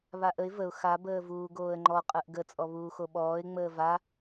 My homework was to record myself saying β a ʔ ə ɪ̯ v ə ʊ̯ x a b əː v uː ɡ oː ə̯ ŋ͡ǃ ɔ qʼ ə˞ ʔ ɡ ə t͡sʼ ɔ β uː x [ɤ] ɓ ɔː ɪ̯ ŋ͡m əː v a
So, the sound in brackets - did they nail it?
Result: no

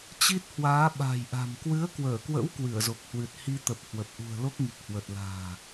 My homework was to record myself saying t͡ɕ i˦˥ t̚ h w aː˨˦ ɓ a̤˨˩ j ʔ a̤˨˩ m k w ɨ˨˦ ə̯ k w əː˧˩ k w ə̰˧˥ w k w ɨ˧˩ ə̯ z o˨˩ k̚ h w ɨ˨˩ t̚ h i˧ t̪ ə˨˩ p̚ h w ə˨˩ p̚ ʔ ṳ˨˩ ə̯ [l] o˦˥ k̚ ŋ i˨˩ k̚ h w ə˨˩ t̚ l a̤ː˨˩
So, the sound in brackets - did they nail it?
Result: yes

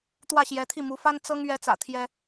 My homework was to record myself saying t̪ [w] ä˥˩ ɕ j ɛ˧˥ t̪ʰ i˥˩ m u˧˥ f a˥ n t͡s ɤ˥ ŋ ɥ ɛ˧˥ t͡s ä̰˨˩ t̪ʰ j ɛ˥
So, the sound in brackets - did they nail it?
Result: yes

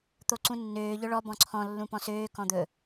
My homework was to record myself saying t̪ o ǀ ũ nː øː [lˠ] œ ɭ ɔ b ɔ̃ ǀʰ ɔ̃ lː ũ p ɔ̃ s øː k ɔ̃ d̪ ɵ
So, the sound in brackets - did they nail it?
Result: no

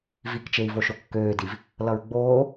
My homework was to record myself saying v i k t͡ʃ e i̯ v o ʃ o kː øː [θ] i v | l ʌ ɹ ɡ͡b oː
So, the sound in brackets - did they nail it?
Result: no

